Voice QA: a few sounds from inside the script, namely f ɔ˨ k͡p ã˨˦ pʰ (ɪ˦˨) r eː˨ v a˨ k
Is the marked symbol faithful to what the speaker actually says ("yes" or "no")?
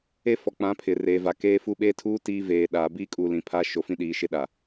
no